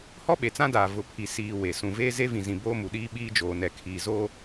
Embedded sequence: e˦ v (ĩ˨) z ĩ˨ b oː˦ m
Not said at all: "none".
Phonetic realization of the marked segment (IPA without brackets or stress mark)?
ĩ˨